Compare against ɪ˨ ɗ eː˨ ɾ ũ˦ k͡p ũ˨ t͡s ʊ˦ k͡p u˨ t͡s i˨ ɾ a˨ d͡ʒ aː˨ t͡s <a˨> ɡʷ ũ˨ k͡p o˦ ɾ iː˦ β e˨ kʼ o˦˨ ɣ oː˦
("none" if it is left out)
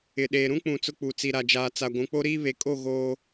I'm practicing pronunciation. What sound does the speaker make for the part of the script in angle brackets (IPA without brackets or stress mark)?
a˨